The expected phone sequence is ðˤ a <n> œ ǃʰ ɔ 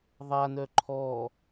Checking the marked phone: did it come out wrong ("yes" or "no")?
no